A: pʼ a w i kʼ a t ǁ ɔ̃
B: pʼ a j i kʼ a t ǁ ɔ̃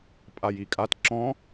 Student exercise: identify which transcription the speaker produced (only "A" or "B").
B